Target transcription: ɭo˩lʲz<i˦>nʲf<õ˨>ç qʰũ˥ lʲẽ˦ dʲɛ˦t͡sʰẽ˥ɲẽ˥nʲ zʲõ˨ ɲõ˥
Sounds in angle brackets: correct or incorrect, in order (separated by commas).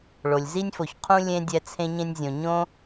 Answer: incorrect, incorrect